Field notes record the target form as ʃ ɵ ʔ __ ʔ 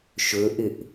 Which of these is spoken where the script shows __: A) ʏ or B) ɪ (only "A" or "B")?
B